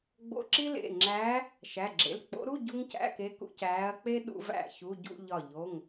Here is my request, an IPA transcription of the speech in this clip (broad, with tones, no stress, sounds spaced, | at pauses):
ɡ͡b o̰˧˥˧ ǁ i˥ l ḛ˩˧˩ ŋ͡ǁ æː˧˥ | ʃ æ˩˧˩ ɡ͡ǁ ḛ˩˧˩ l k͡p o̰˧˥ ɾ u˧˥˧ ɟ u˥ ŋ c æ̰˧˥˧ k e˧˥ k ṵ˧˥˧ c æː˧˥ ɐ̯ k͡p e˥ ɗ ṵ˥ v æ̰˥˧ ç u˧˥˧ ɟ ṵ˥˧ ʎ ɒ˧˩ ʎ o˩˧˩ ŋ